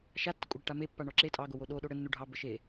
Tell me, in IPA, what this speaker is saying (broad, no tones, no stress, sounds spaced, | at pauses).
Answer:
ʃ a tː ə kʷʼ ə ɽ e ʈ a m e pː a ɳ ɔ ǁ e tʼ ɑ ɡ o w o ɗ o ɗ o ɽ ɘ nː u ɖʱ ɑ b ə ʃ e